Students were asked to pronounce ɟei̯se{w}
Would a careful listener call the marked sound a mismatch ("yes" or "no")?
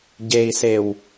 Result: no